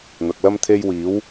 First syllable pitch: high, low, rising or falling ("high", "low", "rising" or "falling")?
low